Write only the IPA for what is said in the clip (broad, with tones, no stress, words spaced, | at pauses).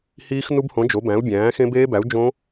hiː˦˥xnu˦˥bhõ˨˥ d͡ʒo˨˥bæ̃˨˥u̯bʲæ̃ː˨˥ xẽ˦˥beː˦˥bæ˨˥u̯ d͡ʒõ˦˥